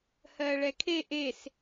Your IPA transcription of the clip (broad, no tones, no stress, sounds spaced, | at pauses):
h ɜ ɭ ɛ kʰ e ʔ e s